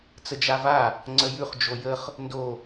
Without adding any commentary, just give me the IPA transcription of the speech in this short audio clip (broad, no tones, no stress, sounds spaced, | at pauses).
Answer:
t͡s ə d͡ʒ a v a | ŋ͡ǀ ə j ʉ χ d͡ʒ o j ə χ | n d o